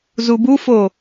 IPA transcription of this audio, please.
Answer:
z u b u f o

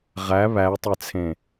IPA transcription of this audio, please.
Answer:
ʁ æ β æ e̯ tˤ ɛ t͡sʰ ẽ

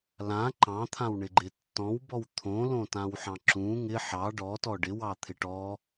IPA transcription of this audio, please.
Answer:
l ã ǃ ɑ̃ t̪ʰ ã w ɳ ɪ ɡ͡ǃ ɪ tː ɔ̃ w b ɔ w t̪ʰ õ l õ t ã w ħ ɑ̃ ǁ ũ ŋ ɪ ħ ɑ ɖ ɔ t ɔ ɖ ɪ w ɑ t̪ʰ ɪ ʈ ɔ

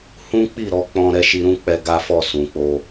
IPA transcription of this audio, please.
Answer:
h ũ˦ k͡p i˦˨ ɾ ɔ˧ k͡p ɔ̃˧ ɾ ɛ˧ ʃ i˧ ɾ ũ˦ k͡p ɛ˧ ɡ a˦ f ɔ˦˨ s ũ˨ k͡p o˧

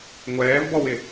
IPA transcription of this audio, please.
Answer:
ŋʷ ɛː v b ɔ w ɪ

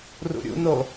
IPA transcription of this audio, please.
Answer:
r ṵ ɾʲ ṵ n o

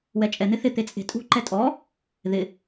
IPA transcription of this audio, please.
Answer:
w ɛ t͡ʃʼ ɛ n̪ ɪ θ ɪ t̪ e t͡sʼ e̤ tʼ ṳ ǃ ɛ tʼ ɔ | ð ɪ

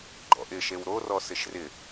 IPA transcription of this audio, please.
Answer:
ɡ͡ǃ ɔ̰ ʔ ɪ ʃ e w ɾ o r ɔ s ɪ ʃ r ɪ

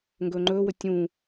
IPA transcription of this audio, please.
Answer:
ŋ ɡ ɵː ŋ͡ǃ ɵː w ɵ tʲ ũː

